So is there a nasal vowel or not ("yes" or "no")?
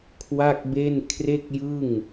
no